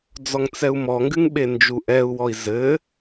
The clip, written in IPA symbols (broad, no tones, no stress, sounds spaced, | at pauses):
d͡z ɔ ŋ t͡s ɛ u̯ m ɔ ŋ ɡ ɨ ŋ ɓ e n d͡ʒ u ʔ ɛ u̯ w ɔ i̯ z ɘ